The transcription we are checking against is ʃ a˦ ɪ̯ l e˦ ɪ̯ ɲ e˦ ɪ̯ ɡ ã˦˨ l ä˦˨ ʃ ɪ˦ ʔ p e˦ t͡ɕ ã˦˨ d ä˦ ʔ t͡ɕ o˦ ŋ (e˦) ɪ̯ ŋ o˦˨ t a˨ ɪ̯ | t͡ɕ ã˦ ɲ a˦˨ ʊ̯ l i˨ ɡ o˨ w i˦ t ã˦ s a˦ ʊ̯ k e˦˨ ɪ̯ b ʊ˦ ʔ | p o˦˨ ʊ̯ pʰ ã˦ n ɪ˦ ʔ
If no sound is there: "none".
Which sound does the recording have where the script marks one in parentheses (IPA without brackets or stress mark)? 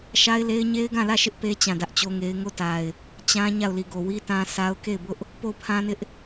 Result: e˦